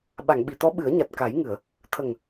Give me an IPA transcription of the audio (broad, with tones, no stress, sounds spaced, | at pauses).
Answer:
ɓ a˨˩˨ ŋ ɓ i˨˩˨ t̪ ɔ˧˥ ɓ ɨ˨˩˦ ə̯ ɲ a˨˩ t̚ k a˨˩˦ j ŋ ɨ˨˩˨ ə̯ | t̪ʰ ə˨˩ ŋ